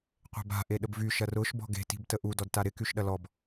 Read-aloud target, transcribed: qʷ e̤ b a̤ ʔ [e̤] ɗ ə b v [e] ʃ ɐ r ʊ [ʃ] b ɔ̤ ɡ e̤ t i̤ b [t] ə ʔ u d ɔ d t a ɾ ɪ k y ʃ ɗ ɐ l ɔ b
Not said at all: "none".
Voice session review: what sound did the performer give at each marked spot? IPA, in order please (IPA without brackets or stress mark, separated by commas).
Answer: e, y, ʃ, t